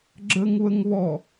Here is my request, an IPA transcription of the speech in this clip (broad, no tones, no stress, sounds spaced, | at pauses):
ɡ͡ǁ ə ŋ β ə ŋ β ɔ